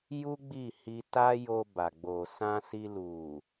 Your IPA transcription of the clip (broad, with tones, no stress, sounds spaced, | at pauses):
j u˦ ɡ͡b i˦˨ h i˧ t a˦ j o˧ b a˨ ɡ͡b o˨ s ã˧ s i˧ l u˨